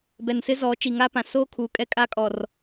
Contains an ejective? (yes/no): yes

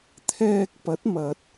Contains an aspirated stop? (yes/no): yes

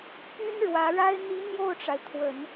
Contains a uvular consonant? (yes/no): no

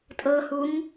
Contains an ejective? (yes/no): yes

